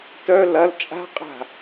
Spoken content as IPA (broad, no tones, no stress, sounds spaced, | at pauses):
t œ l ɐ l t͡ʃʼ a̤ qʼ a̤